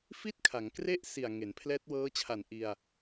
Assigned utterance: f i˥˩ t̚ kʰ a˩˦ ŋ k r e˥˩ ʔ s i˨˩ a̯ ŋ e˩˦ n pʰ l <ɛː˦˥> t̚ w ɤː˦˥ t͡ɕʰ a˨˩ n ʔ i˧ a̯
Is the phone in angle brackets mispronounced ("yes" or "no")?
no